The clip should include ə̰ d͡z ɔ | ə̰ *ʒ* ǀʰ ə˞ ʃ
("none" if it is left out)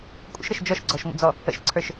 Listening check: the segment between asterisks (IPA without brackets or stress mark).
ʃ